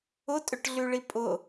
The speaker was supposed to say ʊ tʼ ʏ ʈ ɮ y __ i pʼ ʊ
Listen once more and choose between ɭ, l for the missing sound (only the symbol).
ɭ